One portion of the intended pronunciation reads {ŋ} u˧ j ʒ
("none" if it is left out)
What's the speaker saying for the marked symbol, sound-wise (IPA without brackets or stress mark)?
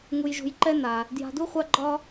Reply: ŋ